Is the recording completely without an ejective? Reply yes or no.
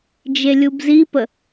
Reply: yes